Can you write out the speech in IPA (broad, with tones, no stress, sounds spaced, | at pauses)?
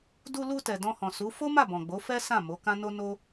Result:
d u˧ l u˧ t ɛ˨ d ɔ̃˧ h ɔ̃˨ s u˨˦ f o˦ m a˦˨ b ɔ̃˨ ɡ͡b o˨˦ f ɛ˦ s ã˦˨ m o˨˦ k ã˦ n o˦ n o˦